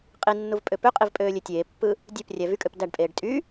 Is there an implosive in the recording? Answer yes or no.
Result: no